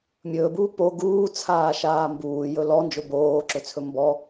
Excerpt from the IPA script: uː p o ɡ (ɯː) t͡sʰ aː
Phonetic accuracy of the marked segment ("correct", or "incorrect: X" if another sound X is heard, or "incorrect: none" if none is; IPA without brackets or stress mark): incorrect: uː